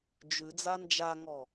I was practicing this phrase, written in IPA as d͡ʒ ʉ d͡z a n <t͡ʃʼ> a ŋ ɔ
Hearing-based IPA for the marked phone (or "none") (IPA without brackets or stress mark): d͡ʒ